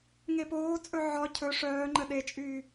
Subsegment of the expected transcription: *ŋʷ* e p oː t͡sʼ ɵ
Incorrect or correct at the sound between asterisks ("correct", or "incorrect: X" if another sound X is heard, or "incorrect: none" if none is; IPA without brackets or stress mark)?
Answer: incorrect: ŋ